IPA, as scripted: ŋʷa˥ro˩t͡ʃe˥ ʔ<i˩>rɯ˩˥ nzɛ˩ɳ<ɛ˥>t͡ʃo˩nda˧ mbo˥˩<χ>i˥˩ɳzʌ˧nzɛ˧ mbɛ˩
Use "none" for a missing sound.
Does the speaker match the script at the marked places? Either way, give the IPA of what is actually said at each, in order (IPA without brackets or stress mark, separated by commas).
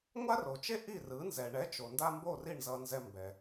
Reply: i˥˩, ɛ˩˥, r